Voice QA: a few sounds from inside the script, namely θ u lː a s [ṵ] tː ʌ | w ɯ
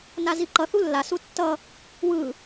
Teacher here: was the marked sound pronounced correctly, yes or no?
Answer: no